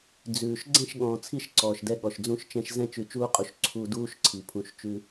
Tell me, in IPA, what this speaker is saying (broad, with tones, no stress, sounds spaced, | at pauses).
d͡z ʉː˨ ʃ ɡ͡ǀ ɛ̃˦˨ ʃ ɠ ɔ̃ː˨ t͡sʰ i˧ ʃ ǀ ɔː˨ ʃ d ɛ˧ ɠ ɔ˨ ʃ d͡z ũ˧ ʃ t͡ʃ ɛ̃˧ ʃ z ɛ̃˦ t͡ʃ ʉ˧ t͡ʃ uː˦ qʼ u˧ ʃ ǀʰ u˧ d uː˦ ʃ ǀʰ i˨ pʰ ũ˧ ʃ t͡ʃ ʉ˦